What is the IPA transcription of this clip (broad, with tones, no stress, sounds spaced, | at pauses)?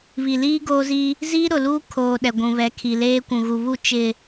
β i˨ l iː˦ ɡ oː˦ z i˦ | z iː˦ ɾ ʊ˨ l uː˦ kʰ oː˨ ɗ ɛ˨ ɡʷ ũ˨ β ɛ˨˦ kʰ i˨ l eː˦ kʷ ũ˨ ɣ u˨ β u˦˨ t͡ʃ ɪ˨